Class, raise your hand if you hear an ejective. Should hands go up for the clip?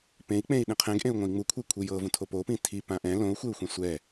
no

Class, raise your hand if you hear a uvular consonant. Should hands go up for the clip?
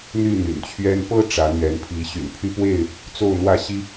no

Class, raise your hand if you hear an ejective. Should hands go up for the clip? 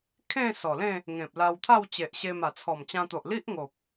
no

